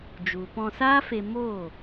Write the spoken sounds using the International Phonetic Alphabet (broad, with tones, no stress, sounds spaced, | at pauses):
d͡ʒ u˨ p ɔ̃˧ s aː˦ f e˧ m oː˦˨